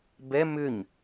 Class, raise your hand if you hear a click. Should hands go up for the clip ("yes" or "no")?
no